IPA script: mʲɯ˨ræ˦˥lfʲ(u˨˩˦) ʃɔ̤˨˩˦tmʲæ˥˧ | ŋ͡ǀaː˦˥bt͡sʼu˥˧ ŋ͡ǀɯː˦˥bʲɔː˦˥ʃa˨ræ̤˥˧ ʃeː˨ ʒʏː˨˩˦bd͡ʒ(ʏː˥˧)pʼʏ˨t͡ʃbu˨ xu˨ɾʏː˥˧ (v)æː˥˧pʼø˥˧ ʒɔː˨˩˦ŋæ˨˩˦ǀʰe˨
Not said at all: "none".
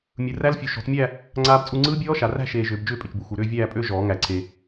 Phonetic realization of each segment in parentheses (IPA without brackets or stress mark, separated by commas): u˨, ʏː˥˧, vʲ